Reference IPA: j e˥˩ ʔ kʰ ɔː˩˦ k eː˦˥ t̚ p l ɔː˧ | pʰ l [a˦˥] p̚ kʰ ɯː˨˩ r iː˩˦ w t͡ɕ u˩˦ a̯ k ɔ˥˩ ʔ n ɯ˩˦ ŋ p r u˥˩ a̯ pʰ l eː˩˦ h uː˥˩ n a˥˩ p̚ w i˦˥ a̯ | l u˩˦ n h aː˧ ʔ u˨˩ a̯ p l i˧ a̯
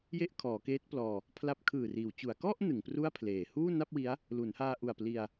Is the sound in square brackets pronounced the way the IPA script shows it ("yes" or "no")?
yes